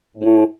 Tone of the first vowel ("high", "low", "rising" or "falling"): low